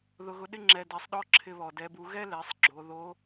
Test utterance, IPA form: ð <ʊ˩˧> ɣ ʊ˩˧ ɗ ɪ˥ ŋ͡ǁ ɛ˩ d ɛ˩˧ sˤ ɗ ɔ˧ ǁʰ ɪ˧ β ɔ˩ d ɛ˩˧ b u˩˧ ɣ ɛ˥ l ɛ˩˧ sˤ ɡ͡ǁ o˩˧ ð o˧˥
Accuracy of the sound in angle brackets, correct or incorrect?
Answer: correct